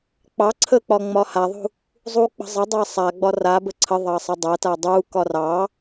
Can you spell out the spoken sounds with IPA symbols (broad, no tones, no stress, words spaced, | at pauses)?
k͡pɑ ǀʰək͡pɒ ŋ͡mɒhaðˤṳ | zˤu k͡pə̤zˤədˤa sˤaɡ͡bɒ rabə ǀʰə ðˤɑsˤɐdˤɐta dˤukɒ rɑ